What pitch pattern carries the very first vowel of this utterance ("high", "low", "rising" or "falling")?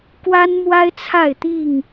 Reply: high